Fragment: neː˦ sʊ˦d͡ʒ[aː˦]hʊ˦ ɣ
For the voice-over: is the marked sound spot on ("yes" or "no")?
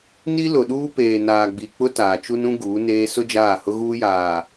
no